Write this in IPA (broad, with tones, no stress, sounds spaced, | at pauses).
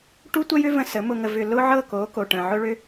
ʈ u˦ tʷ ə˦ j ʏ˦ v ə̃˦ s ə˨˦ m ʊ˨ ŋ ə˨ v ʏ˨ l ʊ˦ ʕ ɤ˦˨ k o˨˦ k o˨ ʈ ə̃˨ ʕ ʊ˦ ɭ ʏ˦